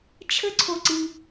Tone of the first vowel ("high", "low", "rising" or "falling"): high